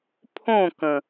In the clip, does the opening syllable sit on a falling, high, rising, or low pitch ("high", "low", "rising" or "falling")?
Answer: falling